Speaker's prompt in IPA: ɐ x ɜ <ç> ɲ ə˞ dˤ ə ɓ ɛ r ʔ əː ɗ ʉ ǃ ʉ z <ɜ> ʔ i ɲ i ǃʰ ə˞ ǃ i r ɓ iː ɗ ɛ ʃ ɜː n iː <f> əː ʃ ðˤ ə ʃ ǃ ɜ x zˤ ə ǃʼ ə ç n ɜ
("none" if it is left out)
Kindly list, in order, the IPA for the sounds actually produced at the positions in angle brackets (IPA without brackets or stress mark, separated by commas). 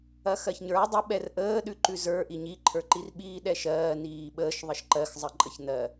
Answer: ç, ə˞, ɓ